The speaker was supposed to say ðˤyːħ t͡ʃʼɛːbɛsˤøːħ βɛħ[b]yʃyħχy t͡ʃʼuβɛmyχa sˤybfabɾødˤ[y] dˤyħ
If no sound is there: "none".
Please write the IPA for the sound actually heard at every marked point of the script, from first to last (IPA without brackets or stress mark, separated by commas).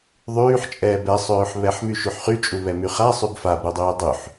m, yː